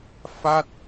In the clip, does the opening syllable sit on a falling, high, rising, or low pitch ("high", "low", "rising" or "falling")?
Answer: falling